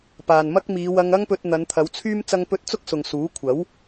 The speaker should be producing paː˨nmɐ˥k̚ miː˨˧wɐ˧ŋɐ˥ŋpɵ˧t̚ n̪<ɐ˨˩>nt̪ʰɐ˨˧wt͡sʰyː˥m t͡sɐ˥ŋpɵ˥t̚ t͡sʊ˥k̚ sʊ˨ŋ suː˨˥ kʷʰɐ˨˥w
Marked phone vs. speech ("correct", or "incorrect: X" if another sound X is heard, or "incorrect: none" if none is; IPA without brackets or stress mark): incorrect: ɐ˨˧